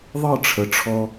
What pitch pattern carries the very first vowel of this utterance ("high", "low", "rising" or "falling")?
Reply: falling